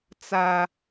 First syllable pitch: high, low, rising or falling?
high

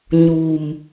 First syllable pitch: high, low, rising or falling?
low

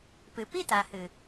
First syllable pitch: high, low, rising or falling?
low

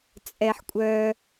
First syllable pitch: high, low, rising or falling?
high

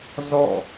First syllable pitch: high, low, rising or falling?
falling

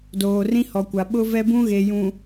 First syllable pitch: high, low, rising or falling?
low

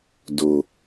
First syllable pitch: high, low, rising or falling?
low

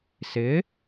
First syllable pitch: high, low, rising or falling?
rising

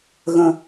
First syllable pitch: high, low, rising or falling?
low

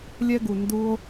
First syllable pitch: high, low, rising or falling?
high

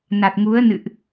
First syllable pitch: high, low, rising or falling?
low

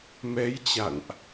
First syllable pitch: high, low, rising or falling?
rising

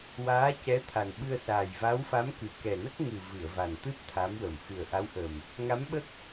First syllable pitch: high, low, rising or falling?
rising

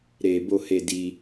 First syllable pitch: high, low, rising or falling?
low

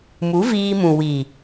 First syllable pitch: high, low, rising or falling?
rising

